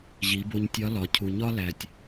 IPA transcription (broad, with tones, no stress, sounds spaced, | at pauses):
ʑ i˩˧ b o˧ ɲ tʲ ɒ˧˥ l ɒ˩˧ cʰ u˩ ɲ ɒ˥ l æ˩ tʲ